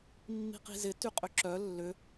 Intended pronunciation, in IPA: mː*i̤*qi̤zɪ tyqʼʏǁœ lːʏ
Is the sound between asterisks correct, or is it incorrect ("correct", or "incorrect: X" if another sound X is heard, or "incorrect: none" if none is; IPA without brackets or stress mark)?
correct